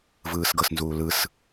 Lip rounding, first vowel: unrounded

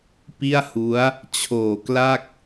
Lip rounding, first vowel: unrounded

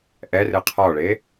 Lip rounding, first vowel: unrounded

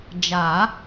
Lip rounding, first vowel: unrounded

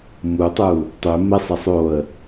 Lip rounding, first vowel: rounded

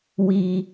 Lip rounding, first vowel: unrounded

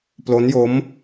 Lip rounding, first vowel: rounded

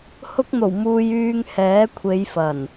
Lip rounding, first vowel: rounded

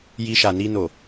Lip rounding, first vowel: unrounded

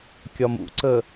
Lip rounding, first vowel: rounded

